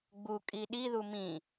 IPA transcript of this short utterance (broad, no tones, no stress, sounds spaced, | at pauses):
ɡ͡b u kʼ i ɗ i ð u m ĩ